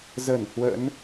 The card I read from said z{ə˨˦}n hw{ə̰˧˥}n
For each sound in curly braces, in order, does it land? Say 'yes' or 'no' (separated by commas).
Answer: no, yes